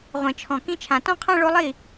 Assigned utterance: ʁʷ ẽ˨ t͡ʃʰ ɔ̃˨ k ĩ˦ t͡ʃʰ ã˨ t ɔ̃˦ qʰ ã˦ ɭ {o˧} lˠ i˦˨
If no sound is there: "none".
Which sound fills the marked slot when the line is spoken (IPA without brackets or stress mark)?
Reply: o˧